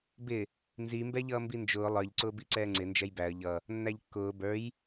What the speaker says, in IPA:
bɪ | nzi mbɛʎʌːmbind͡ʒʊː lˠə˞ʎǀʊː biǀɛːŋ͡ǀɪ nd͡ʒɛjbæə̯ ʎʌ | nːæʎkːʊː bə˞j

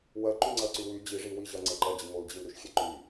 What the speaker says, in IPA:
wɜǃyŋ͡ǀɜǀy wy d͡ʑi ʐiwiʑɜ ŋ͡ǀeǃɜd͡ʑi ŋold͡ʑilɾyʃxʲe ǃy

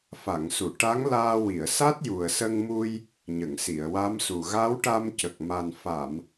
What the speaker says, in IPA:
fa˨˩˨ŋsu˨˩˨ ʈa˧˥ŋlaː˧wi˨˩˨ə̯ sa˦˥t̚ju˨˩ə̯sə˧ŋmu˧j | ɲə˨˩˨ŋsi˨˩˨ə̯wa˧˥msu˨˩ ɣa˧˥wʈa˧mcə˨˩k̚ma˨˩n fa˨˩˨m

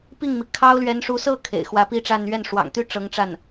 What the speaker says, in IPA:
pi˥˩ŋmi˩ kʰɑ˥ʊ̯lɥɛ˧˥nʂu˧˥ sɤ˥˩ kʰḛ˨˩ɪ̯xwä˧˥pi˥ʈ͡ʂa˥˧n ɥɛ˥˩nʂwɑ̰˨˩ŋt̪y˥ ʈ͡ʂɤ˧˥ŋʈ͡ʂa˥˩n

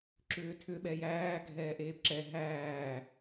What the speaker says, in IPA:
ǁʏːtʰʏ ɓɛjæː ɡʱɛːʔeːpǁɛ ɦæː

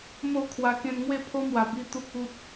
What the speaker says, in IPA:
mo˥˧kʰwa˧ kẽ˧nŋwe˥˧pʰo˦ mwa˨˩bi˧ t̪u˦k̚u˦t̚

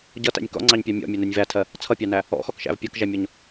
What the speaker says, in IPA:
ɟʌtæ̰nʲ kɔ̰ŋ͡ǀɑɲpʲɑ mʲɔ̰mʲænɜnʲ vætʰɜ | t͡sʰʌpʲɑnæ | ɔ̰xɔkʃæ̰v pʲʌkʒæmʲɔɲ

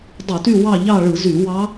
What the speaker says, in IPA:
dˤu˧˩˧ty˦˨ wɑ˦˨ʎɑ˦˨ɭɯ˧˩˧ zy˧˩˧ wɑ˧˥

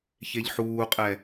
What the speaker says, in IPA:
çeʎħuːqʼɛ

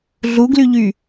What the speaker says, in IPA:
ɮuɡlyʎy

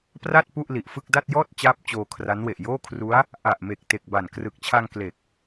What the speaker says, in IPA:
pra˥˩t̚ pu˥˩ʔli˨˩ʔfɯ˥˩k̚ da˥˩t̚jɔː˥˩t̚ t͡ɕaː˥˩p̚t͡ɕoː˧kʰra˦˥nwe˨˩ʔ joː˥˩kʰru˦˥a̯ | ʔa˨˩ʔme˨˩k̚te˨˩k̚ ba˨˩nkrɯ˨˩k̚t͡ɕʰa˧ŋ kle˨˩k̚

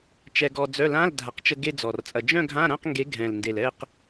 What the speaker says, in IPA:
t͡ʃɛ˧ɡɔ˧d͡zœ˧˥˧ lã˧˥˧l dʱa˩˥qt͡ʃə˧ ɡe˥˧d͡zɔ˨˩rt͡sʼɐ˧ d͡ʒœ̃˥˧ɡʱã˧˥˧ɾã˥˧q ŋɡe˧˥ɡʱɛ̃˨˩l nde˨˩l ɛ˥˧q

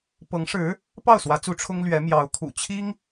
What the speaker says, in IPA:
pɤ˧˥ŋʂɻ̩˧˥ | pɑ˥˩ʊ̯swä˧˥t͡su˧˥ ʈ͡ʂʰʊ˥ŋlɥɛ˧˥ mjɑ˧˥ʊ̯ kʰṵ˨˩t͡ɕʰi˥ŋ

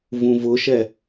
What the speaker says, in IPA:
vũvʊʃɛ

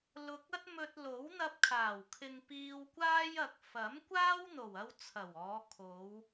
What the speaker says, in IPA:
lʊ˨k̚ ɐ˥t̚mɵ˧t̚lo˨˥w n̪ɐ˧p̚kʰaː˨˩w kʰɪ˨ŋ piː˧wkʷaː˥j ɐ˨k̚ fɐ˨˥m kʷaː˥wn̪o˨˩wɐ˧w t͡sʰɐ˨˩wɔː˨˧kʰo˨˧w

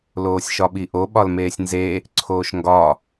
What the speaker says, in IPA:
loːsʲʃɒɓiʔo ɓɒlmeːsʲnze | ǀʰoːʃŋɡɒ

